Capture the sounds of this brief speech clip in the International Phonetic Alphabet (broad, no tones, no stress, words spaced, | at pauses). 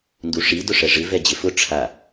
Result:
nduʂi dʊʂɛʐɪ vɛd͡ʑɪfʊ ʈ͡ʂʰa